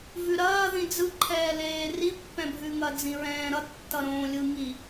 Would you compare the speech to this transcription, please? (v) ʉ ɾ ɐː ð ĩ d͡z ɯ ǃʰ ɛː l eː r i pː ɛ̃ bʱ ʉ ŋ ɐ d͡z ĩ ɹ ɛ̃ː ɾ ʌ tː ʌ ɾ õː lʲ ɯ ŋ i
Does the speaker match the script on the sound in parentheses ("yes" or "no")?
yes